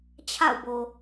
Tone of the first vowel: falling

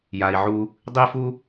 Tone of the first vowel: low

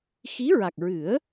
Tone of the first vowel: rising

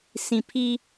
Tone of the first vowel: high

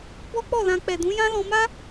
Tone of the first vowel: high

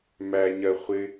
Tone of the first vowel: low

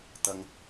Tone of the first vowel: high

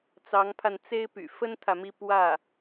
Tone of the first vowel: rising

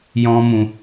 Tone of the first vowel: high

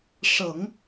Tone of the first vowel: low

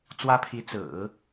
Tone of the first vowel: high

